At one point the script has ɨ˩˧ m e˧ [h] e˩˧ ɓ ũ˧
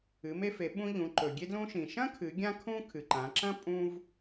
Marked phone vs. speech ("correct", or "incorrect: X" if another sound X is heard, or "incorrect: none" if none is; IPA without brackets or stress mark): incorrect: f